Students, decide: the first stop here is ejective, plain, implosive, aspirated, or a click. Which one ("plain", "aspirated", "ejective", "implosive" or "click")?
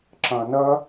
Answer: click